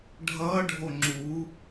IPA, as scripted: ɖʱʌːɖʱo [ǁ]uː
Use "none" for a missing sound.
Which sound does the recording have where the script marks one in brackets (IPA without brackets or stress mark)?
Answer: ŋ͡ǁ